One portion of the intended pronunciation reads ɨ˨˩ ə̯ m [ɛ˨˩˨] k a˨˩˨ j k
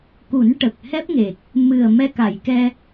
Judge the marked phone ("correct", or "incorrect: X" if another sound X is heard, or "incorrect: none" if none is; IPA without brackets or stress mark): incorrect: ɛ˧